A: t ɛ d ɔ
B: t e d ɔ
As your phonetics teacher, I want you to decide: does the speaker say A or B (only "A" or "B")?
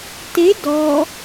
B